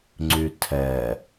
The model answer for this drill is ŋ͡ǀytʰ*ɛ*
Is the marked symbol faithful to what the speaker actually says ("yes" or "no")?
yes